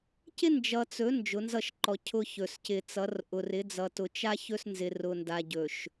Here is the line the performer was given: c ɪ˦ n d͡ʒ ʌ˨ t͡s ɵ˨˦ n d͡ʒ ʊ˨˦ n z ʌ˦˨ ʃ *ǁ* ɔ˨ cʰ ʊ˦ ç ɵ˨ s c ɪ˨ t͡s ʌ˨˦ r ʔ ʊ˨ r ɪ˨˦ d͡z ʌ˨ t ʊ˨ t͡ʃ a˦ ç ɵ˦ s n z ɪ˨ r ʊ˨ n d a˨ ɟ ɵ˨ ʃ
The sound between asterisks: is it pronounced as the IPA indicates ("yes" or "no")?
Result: no